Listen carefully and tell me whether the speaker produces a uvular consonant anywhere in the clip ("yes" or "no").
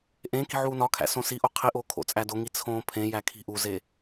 yes